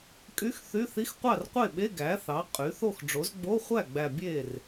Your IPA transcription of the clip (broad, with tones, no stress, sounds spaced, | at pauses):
kʼ y˧˥˧ x θ y˧˥˧ θ i˧˥˧ x qʷ ɑ˥˩ r qʷ e˥˩ ɓ e˧˥˧ ɡ æ˩˥ θ ɑ˩˥ qʼ y˩˥ θ o˥˩ x ɖ͡ʐ o˩˥ z ɡ͡b o˧˥˧ χʷ æ˥˩ ɡ͡b æ˨˩ bʲ e˥˩ r